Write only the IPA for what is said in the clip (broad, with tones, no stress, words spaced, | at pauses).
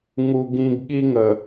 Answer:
ŋu˦ɡĩ˦ɡ ɠi˦ŋə˨